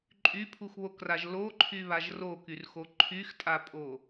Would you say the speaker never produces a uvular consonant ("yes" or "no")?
yes